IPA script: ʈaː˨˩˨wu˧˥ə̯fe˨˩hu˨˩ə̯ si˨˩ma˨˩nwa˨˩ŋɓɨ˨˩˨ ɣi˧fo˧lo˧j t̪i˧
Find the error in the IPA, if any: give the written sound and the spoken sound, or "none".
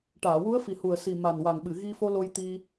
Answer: e˨˩ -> i˨˩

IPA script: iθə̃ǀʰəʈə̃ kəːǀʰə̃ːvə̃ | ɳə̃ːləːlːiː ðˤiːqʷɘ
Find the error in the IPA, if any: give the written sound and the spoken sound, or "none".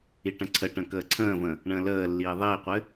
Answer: θ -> ʈ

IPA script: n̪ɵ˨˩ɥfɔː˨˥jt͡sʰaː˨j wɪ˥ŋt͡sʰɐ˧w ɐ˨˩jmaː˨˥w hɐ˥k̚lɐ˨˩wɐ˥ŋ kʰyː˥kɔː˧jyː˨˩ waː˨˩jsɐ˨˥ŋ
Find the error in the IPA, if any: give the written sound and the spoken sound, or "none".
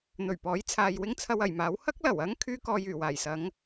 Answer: f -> p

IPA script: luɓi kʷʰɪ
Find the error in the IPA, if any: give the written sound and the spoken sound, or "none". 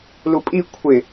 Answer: ɓ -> pʼ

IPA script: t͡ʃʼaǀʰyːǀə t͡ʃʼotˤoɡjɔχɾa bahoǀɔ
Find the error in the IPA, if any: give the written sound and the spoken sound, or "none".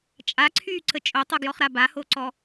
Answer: none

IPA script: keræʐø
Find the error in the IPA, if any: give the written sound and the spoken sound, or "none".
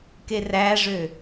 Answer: none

